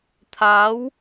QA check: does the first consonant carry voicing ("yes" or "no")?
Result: no